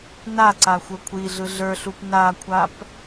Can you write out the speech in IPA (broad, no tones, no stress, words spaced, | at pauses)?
naǀa xʷə˞kʷʰiɮɯ ɮə˞ɬup nakʷʰap